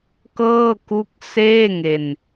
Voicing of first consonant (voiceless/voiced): voiceless